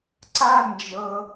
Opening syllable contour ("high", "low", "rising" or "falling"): high